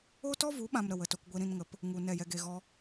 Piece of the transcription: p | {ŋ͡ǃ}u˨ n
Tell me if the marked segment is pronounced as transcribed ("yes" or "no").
no